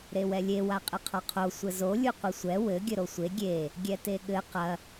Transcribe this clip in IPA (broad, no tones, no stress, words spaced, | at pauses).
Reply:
ɾewɛlʲe waqʼɘqʰɔqʰo sʷɘzo lʲuqʷɘsʷɛ wɘ ɡʲɘɾosʷe ɡʲe | ɡʲɛteɠɘ qɐ